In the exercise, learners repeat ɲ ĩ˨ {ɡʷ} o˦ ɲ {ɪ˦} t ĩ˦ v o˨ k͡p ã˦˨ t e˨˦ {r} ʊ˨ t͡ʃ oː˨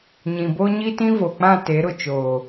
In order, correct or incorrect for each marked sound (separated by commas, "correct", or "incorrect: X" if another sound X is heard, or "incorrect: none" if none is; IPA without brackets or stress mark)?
incorrect: b, incorrect: i˦, incorrect: ɾ